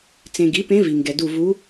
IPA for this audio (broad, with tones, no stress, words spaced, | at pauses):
t͡sẽ˨ɡi˩˥pẽ˧˥ vi˨ŋɡɛ˨du˦˨ vu˧˥